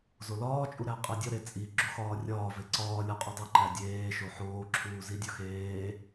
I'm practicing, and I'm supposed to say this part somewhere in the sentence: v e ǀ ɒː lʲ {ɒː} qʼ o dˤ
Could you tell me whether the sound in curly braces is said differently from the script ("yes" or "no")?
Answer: yes